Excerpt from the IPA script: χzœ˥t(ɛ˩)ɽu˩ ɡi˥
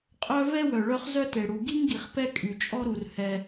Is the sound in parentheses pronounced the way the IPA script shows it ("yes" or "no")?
no